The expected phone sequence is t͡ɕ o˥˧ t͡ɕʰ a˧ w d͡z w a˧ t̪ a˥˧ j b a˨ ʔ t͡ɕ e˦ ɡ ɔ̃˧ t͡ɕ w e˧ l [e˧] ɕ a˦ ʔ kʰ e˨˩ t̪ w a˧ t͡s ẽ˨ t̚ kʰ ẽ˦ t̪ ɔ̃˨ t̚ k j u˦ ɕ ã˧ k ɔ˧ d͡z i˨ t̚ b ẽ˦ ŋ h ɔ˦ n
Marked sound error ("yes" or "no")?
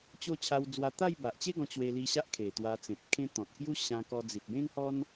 yes